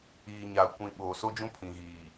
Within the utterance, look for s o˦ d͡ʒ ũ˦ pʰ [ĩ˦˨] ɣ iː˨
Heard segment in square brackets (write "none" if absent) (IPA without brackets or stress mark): ĩ˨